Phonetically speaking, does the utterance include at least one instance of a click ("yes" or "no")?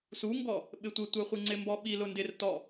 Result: yes